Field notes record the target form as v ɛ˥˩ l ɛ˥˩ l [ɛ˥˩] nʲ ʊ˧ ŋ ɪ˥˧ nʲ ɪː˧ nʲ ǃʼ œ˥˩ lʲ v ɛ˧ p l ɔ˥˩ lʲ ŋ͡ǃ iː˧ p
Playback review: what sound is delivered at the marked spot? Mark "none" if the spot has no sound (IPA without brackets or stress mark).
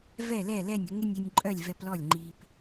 ɛ˥˩